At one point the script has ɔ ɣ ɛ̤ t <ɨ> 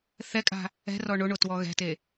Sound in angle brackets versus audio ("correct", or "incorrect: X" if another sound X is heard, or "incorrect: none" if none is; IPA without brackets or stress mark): incorrect: e